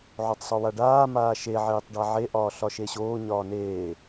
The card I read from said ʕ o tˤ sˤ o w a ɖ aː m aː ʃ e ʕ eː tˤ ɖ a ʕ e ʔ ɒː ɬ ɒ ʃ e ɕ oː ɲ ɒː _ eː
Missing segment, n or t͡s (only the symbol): n